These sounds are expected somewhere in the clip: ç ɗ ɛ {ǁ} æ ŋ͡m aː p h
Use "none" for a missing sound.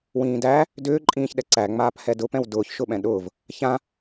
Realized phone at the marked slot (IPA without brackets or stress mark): ǀ